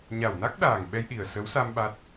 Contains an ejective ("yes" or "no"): no